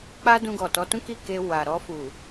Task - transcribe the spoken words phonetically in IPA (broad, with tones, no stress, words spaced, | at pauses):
k͡pa˦dũ˧ɡɔ˨ tɔ˨˦tũ˦ki˦˨ ke˧ wa˨ɾɔ˧fu˨